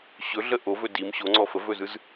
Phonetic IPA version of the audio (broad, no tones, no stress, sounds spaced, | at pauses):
ɕ ɵ ɮ ə ʔ o v ɵ d i m ɕ o ŋ͡ǀ ɔ f ə v ɵ z ɯ z